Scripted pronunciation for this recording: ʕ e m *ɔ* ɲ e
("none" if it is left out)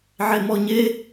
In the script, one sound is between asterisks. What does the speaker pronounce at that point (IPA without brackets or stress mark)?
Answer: ɔ